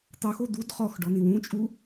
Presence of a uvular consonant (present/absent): present